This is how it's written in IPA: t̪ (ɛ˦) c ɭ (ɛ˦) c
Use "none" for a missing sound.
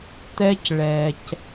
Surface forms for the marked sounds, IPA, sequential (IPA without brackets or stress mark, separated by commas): ɛ˦, ɛ˨